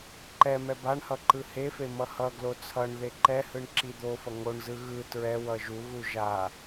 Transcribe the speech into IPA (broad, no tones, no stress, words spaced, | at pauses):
ǃɛ mɛbaɳhʌ ǃɯhefe mʌhʌɡlo t͡sʰʌɳðe ǃɛhɯɳ ǁid̪ofʌ ŋoɳzɯ ɣɯ tɹɛwʌ ʒuɣu ʒa